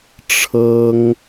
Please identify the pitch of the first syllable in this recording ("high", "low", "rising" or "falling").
high